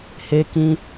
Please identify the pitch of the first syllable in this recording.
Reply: high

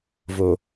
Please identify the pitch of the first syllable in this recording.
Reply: low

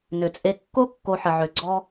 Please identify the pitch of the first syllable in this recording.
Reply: low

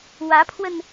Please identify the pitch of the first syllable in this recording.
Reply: rising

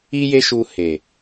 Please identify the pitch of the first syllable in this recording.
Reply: high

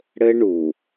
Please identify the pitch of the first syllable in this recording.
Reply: high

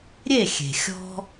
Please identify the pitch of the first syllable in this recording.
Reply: falling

